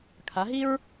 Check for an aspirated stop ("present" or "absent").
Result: present